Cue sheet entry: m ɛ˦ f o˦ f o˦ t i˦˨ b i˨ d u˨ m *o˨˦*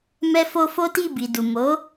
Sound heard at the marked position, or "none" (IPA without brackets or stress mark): o˨˦